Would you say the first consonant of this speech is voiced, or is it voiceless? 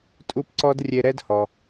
voiceless